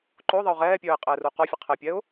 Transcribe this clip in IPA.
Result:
ǃ o ðˤ ə ʊ̯ ʁ ɛː pʲ œː ɪ̯ qʼ ɛː r u q ɔ fʲ ə qʰ ɛ pʲ ɛ ʊ̯

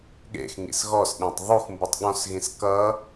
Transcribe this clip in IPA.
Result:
ɠ ḛ x ŋ ḭ s ɣ ɔ s ɗ ẽ tˤ ðˤ u x m b u tˤ ɠ ɔ̃ s ɣ ĩ s k ʌ

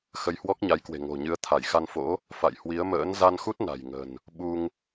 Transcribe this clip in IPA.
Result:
x ə˧ j h w ɔ˦˥ k̚ ɲ a˨˦ j k w e̤˨˩ ŋ o̤˨˩ ɲ ɨ˨˦ ə̯ t̪ʰ a˧˩ j x a˧ n f o̰˧˥ | f a̰˧˨ j h w i˨˦ ə̯ m ə̰ː˧˥ n z a˧ n x u˦˥ t̚ n a̤˨˩ j ŋ ə̤˨˩ n | ɓ u˧ ŋ

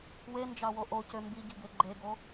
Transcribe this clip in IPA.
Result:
w e n d͡ʒ ɑ w o ʔ o c ø m b i ɟ i ɡ e ɡ͡ǃ e ɡ o

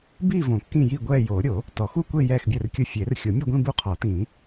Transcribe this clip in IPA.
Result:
b i˥˧ v õ˨˩˦ kː ĩ˥˧ j i˥˧ ɡʷ ɛː˥˧ j oː˨˩˦ ɾʲ o˨˩˦ | t ɔ˨˩˦ x u˥˧ kʷ e˥˧ j ɛː˥˧ x bʲ ɛ˥˧ r kʲ ʊ˥˧ fʲ e˨˩˦ r xʲ o˨˩˦ mʲ ʊ˥˧ ɡʷ ĩ˥˧ b u˥˧ qʰ ɔ˨˩˦ t ĩː˨˩˦

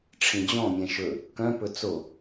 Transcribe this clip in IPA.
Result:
ʈ͡ʂʰ ĩ d͡ʑ ɔ̃ mʲ ɛ̃ ʃ ɵ | k œ̃ p ɵ t͡s o

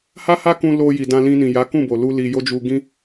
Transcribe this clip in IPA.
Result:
h a˦ h a˦ k ũ˧ l o˧ j i˨ d ã˧ l ĩ˧ n ĩ˨ j a˨˦ k ũ˦˨ b o˨ l u˧ l i˧ j o˦ d͡ʒ u˧ ɡ ĩ˦

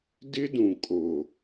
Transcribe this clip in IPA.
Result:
d ɪ˦ d ũ˨ kʼ o˨

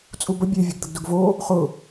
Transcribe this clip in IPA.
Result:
t͡sʼ u b ə bʲ e vʲ ə ɡ d̪ ə ɡ d ʊ ɡ v o | χ ʊ

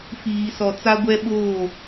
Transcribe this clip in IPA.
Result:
f iː˨ s ɔ˨ t͡s a˦ ɡʷ ɛ˦ ɓ oː˦˨

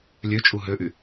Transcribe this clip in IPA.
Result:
lʲ ø t͡ʃʼ u ɦ ø ʔ y

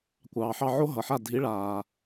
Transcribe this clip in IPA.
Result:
kʷ ɑː˩ ħ ɑ˥˩ ʕ o˥ ɦ ʌ˩ ħ a˥˩ dʱ i˩˥ ɭ aː˩

